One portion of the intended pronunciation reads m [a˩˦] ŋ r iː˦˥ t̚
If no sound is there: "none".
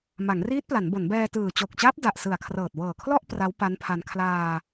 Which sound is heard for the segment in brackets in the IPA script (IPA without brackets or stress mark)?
a˩˦